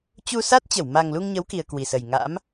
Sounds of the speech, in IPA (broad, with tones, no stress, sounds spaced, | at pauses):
t͡ɕ u˧ s a˦˥ t̚ t͡ɕ ə˧˩ w m a˨˩ ŋ l u˧ ŋ ɲ ə˨˦ w k i˧ ə̯ k w i˨˩ s ə˨˩ j ŋ a̰˧˥ m